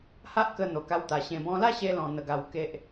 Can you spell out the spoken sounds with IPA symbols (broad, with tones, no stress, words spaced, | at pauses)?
ha˦ʔkə˧ n̪o˨˩ ka˧wt̪a˨˩ ɕẽ˨˩bɔ̃˧la˥˧ɕe˧ lɔ̃˧n̪ə˧ɡa˧w ke˦ʔ